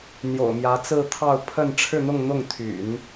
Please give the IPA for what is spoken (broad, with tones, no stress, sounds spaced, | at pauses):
n̪ j o̰˨˩ ʊ̯ m j ä˧˥ t͡s ɹ̩˥˧ t̪ʰ ɑ˥˧ ʊ̯ pʰ ə˥˧ n ʈ͡ʂʰ ɻ̩˥˧ n̪ ʊ˥˧ ŋ n̪ ʊ˥˩ ŋ t̪ʰ y̰˨˩˦ n